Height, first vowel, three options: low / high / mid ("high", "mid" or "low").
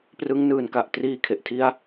high